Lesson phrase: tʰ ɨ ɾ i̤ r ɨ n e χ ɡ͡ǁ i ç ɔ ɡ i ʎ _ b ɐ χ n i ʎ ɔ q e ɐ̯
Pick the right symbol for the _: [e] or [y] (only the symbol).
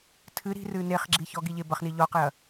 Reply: e